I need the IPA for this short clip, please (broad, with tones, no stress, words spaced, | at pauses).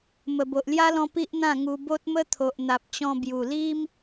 mə˨˩bo˨ʔlja˦lɔ̃˧ pi˦ʔ n̪ã˥˧ŋu˧ bo˦t̚mə˦t̪ʰo˨ʔ n̪a˨p̚t͡ɕɔ̃˧ bju˨˩li˦m